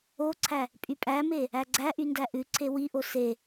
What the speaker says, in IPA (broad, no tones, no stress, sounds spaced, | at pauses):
o ǀʰ æ | pʼ y pʼ æ m e | æ ɡ͡ǀ æ ʔ y n d æ ʔ ʉ ǀʰ e w i ʔ o s e